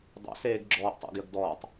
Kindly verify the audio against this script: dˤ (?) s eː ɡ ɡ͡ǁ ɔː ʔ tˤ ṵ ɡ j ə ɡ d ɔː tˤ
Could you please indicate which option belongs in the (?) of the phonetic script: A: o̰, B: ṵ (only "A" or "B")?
A